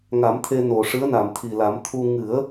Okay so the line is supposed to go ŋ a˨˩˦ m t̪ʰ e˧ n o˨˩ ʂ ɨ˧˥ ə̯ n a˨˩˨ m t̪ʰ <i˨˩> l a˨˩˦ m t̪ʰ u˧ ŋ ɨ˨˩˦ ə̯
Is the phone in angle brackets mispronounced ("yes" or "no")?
no